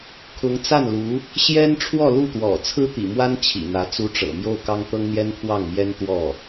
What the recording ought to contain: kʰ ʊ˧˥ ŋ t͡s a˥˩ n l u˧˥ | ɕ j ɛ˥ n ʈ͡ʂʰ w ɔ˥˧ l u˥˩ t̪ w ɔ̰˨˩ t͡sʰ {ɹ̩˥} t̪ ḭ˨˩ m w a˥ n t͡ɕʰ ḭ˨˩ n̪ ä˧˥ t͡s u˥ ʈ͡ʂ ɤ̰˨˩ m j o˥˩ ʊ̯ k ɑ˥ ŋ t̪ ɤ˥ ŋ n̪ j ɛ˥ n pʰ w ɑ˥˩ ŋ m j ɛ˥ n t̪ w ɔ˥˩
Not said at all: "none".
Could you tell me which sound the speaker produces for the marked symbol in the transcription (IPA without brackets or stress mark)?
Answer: ɹ̩˥